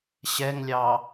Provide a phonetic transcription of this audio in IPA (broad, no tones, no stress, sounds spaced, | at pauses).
ɕ ɛ ŋ lʲ ɑ